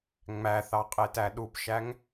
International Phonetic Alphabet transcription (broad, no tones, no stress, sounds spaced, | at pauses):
ŋ͡m æ θ ɑ qʼ e t æ ɗ u p ʃ æ ŋ